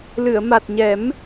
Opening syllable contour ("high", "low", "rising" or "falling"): low